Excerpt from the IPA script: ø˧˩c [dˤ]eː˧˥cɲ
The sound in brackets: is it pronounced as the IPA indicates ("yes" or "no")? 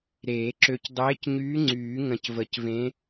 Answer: yes